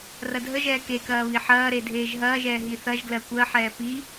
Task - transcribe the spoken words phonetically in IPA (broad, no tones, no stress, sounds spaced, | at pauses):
r ɐ dʱ ə ʒ ɛː k e k ɐː β i ħ ɐː ɾ e dʱ eː ʒ ɦ ɐː ʒ ɛː ɦ i θ ɐ ʒ ɡ l ɜ kʷ ɜ ħ ɛː p i